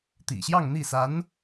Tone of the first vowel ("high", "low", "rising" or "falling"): low